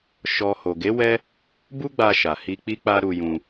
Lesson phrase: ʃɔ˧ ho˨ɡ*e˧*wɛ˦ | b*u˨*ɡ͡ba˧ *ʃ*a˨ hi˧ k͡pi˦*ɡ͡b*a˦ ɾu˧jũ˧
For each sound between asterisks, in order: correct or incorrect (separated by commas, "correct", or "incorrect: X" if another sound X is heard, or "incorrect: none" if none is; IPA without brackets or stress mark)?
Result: incorrect: e˨˦, incorrect: u˦, correct, incorrect: k͡p